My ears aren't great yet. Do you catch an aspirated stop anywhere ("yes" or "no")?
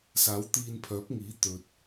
yes